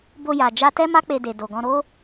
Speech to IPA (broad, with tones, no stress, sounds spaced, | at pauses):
b o˧ j a˨ d͡ʒ a˧ t ɛ˦ m a˦ k͡p e˧ d e˨ d o˨ ɡ ɔ̃˧ ɾ o˦